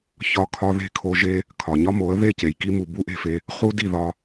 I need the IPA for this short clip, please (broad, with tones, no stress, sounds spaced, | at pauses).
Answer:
ç ɒ˧ kʰ ɒ˧ ð e̤˦˨ kʰ o˧ ʒ e˦ | kʰ ɒ˨ ɲ ɒ˦ m o˨˦ ə̯ ð e˦˨ c e˨ j k i˧ m u˨ b u˦ ʔ e̤˧ f e˧ | χ u˧ d i˦˨ ð ɒ˦